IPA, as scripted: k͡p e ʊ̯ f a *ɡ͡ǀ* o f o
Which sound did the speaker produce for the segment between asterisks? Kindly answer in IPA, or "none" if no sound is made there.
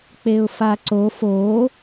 ǀ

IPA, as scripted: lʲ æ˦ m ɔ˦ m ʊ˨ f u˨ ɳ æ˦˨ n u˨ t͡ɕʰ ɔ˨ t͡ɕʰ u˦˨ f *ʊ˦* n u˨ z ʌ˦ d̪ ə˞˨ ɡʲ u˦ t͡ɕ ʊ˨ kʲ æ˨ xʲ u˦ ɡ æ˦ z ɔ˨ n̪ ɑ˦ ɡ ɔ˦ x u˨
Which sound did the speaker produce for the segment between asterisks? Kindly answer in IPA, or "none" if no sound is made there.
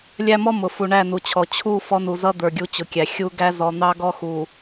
ɔ˦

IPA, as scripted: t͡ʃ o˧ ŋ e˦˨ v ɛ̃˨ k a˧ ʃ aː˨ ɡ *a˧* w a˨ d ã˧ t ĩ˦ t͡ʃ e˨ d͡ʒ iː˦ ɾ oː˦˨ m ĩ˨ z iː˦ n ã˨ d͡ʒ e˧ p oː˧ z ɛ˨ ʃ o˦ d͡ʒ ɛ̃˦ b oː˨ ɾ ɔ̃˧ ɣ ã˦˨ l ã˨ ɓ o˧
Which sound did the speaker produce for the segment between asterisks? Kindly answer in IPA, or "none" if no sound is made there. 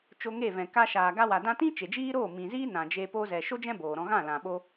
a˧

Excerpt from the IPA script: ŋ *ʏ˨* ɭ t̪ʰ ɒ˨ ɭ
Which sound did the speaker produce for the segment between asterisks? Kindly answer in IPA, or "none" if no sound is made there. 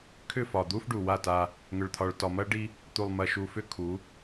ʏ˨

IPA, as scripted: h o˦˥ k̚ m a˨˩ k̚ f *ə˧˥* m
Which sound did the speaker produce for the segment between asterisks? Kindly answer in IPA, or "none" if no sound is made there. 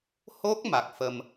ə˧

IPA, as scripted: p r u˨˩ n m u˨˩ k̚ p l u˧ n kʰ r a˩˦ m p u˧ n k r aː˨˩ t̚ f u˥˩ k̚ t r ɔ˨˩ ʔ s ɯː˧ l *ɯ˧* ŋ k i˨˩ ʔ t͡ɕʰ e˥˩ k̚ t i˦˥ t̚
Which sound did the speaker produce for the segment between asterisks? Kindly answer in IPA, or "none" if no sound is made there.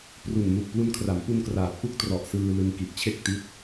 ɯ˧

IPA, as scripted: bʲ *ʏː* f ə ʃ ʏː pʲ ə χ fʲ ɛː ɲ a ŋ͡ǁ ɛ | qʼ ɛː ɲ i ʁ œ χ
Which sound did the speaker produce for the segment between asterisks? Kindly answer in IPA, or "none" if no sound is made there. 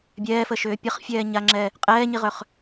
ɛː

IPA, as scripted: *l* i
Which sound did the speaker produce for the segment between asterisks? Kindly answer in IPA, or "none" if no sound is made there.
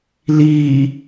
l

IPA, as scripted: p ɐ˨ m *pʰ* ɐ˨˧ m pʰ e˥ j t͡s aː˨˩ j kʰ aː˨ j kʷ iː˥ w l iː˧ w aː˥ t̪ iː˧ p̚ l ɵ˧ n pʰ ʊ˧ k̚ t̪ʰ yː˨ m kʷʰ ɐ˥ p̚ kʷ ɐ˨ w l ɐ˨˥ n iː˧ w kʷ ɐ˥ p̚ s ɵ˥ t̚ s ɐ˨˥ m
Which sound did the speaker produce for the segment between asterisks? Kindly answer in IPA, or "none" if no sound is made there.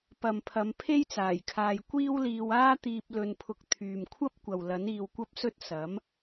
pʰ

